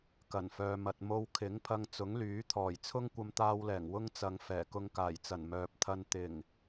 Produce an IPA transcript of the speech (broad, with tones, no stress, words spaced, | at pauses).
kɐ˨˩nfœː˨mɐ˨t̚ mo˧w kʰɪ˨˥ŋpʰɐ˧ŋ t͡sʊ˨˥ŋlyː˨˥t̪ʰɔː˨˩j t͡sʰʊ˥ŋkʷɐ˧mt̪aː˧wlɛː˨˩ŋ wʊ˥ŋt͡sɐ˨˧ŋ fɛː˨˩kʊ˧ŋkaː˨˩jt͡sɐ˨˩n mœː˨p̚t̪ʰɐ˧n t̪ɪ˨˩ŋ